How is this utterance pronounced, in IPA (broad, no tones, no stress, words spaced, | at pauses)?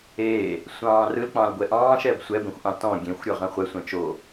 eː | sʷɑ̃ːrɯl k͡pɑ̃lɡʷɛʔɑ̃ːʃ ɛbsʷɛ bẽxʷʔɑ̃tɔ̃ ɡʲẽxʷ ɾʲɔʁɛ̃χʷɛ sʷɛ̃t͡ʃo